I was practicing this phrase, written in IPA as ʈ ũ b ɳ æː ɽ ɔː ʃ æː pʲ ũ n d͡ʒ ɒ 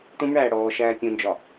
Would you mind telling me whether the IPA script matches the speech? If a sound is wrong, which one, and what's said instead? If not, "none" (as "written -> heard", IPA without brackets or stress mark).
none